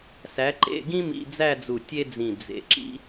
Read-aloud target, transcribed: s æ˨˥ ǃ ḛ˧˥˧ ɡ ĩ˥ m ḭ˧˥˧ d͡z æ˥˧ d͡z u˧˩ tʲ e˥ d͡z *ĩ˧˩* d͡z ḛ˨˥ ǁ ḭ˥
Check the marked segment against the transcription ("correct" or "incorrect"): correct